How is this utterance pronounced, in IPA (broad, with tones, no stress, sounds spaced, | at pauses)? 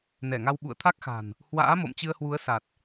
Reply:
n ɛ˧˩ ŋ a˧ w ɓ ṵ˧˨ ə̯ t̪ʰ a˦˥ k̚ x a̤˨˩ n | h w a̰ː˧˥ m o̰˧˨ m t͡ɕ ɨ˧ ə̯ h w u˨˦ ə̯ s a˨˩ t̚